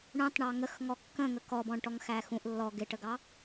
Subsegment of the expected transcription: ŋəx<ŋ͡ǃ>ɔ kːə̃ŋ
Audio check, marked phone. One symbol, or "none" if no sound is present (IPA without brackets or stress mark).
ŋ